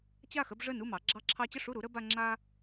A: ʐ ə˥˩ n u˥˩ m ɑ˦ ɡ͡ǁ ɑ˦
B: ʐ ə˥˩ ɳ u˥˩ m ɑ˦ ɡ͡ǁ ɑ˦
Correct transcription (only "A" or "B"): A